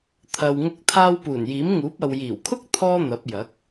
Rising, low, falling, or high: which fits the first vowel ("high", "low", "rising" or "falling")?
low